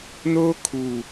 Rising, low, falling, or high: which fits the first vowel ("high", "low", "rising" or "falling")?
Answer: high